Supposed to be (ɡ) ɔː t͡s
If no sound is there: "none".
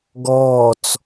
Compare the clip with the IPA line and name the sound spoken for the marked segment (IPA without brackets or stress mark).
ɡ